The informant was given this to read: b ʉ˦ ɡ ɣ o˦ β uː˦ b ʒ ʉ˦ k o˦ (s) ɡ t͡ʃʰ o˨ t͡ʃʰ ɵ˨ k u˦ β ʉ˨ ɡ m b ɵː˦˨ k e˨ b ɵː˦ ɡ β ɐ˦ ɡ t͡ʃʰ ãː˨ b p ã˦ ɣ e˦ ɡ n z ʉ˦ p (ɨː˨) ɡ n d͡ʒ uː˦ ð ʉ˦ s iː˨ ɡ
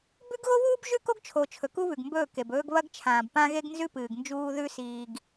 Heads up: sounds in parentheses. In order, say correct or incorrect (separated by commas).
incorrect, correct